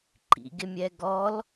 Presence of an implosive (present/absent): absent